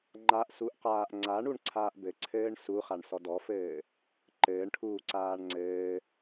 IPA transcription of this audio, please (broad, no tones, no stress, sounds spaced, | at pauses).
ŋ͡ǃ a ʔ s u ʔ q aː ʔ ŋ͡ǀ a ɳ u ɳ ǀʰ aː ʔ b ɘ ǀʰ ɘː ɳ s u χ a ɳ s ɔ d ɔ f ɘː | ǃ ɘː ɳ ʈʰ uː ǀ aː ɳ ŋ͡ǀ ɘː